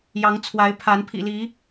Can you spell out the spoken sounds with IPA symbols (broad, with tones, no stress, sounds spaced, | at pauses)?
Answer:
j ɑ˨˦ ŋ t͡sʰ w a˨˦ ɪ̯ pʰ a˨˦ n pʰ ḭ˨˩ l i˨˦